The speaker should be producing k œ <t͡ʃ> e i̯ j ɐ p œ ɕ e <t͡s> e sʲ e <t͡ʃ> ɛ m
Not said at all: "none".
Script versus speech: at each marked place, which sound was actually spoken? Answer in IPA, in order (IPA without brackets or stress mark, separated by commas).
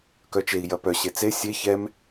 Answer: t͡ʃ, t͡s, ç